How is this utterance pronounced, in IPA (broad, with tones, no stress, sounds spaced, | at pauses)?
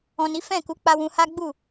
ɔ̃˨ n i˨˦ f ɛ̃˦˨ k u˨˦ k͡p a˧ w ũ˧ h a˦ ɡ͡b u˦˨